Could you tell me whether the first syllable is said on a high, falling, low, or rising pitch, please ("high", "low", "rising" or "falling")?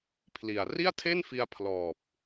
low